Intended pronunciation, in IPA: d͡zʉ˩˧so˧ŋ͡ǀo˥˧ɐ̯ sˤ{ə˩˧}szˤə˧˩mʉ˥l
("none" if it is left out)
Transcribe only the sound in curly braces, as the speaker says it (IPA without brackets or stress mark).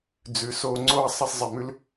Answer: ə˥